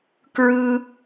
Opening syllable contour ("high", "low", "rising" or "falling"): high